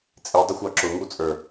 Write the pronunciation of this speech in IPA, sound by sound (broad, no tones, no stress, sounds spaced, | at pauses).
t͡sʼ i dˤ ə xʷ ɑ ǁ ʊ ŋ u t͡sʼ ə˞